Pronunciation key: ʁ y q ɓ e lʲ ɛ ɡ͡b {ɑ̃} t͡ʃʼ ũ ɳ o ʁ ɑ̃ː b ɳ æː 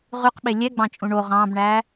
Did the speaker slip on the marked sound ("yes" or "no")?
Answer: no